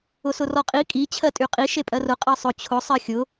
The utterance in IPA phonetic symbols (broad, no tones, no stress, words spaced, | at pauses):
ʊsʊrɔqʼi kʼi t͡ɕʰɜtʼyqʼi ʃepʼɜrʊ qʼɜsˤʊ t͡ɕʰʊ sˤɜxʲʊ